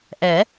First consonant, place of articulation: glottal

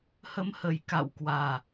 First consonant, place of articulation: glottal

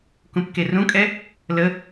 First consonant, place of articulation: velar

